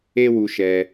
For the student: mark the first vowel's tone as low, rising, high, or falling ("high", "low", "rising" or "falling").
high